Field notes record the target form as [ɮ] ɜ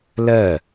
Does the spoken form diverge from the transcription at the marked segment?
yes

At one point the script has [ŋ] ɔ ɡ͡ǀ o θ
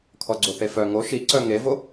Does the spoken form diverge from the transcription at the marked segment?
yes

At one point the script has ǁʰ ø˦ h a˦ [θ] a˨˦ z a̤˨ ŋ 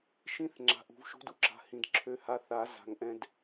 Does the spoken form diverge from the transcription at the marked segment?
no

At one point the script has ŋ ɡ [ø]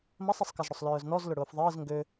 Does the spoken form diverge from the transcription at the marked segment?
no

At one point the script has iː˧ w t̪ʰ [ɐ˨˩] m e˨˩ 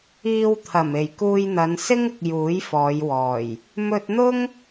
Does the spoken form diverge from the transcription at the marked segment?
no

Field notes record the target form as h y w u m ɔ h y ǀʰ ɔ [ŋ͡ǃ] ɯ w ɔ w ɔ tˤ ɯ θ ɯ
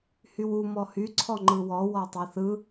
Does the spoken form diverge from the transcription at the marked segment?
no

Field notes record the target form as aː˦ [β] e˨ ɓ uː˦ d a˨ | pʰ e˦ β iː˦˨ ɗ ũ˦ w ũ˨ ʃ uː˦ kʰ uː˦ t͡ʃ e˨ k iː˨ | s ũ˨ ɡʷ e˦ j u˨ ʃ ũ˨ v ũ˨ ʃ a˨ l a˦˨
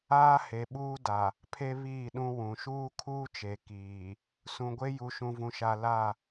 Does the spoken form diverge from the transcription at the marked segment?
yes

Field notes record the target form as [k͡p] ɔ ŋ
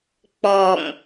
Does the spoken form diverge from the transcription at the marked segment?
no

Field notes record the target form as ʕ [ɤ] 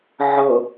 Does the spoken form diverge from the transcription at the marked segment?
no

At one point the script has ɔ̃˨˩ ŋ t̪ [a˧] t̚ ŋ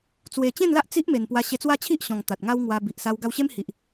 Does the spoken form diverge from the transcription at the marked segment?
yes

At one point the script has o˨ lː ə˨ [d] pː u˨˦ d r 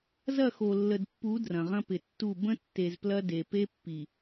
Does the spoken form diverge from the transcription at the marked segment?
no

